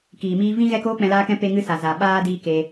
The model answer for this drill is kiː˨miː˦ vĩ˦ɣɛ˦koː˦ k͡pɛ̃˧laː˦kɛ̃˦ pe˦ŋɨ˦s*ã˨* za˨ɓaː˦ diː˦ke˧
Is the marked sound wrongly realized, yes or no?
yes